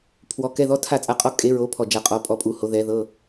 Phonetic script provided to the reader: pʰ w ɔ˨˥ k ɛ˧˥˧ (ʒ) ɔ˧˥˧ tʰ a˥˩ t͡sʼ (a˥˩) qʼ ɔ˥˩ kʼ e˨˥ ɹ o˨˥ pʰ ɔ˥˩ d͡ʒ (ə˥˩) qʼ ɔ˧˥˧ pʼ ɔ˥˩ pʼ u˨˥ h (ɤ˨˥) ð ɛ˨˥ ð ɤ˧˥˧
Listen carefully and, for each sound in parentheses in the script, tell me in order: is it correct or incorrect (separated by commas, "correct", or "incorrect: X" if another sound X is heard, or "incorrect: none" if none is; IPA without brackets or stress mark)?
incorrect: ð, correct, incorrect: a˥˩, incorrect: o˨˥